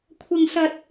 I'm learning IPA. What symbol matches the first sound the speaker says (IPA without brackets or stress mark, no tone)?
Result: kʷʰ